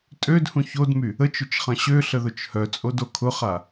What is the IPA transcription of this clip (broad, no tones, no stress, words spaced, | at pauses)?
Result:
tʼødhũ çodmy | ət͡ʃʊt͡ʃχɐ̃ ɕøɬəðʊt͡ʃ hœt͡sʼodo kʰʊχa